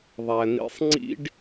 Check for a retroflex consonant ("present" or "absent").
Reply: present